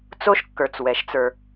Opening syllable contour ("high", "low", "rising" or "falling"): high